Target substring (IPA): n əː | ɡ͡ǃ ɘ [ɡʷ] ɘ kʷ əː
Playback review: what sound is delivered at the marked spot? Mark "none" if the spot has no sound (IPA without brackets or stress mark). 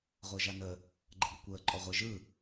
ɡʷ